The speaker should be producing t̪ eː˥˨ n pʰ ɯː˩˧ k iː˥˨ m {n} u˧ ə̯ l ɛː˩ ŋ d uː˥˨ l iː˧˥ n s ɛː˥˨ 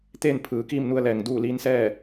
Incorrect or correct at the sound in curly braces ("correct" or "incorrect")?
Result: correct